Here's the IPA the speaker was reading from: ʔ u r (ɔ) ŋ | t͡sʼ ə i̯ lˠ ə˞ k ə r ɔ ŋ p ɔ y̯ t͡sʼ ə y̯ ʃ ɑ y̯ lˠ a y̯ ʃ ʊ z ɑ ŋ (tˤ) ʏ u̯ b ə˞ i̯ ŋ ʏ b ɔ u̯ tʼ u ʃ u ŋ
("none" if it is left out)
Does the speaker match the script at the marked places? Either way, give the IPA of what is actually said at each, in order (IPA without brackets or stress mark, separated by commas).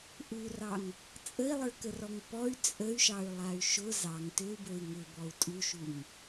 ɑ, t